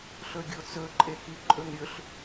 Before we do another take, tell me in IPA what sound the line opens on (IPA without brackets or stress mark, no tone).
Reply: ɬ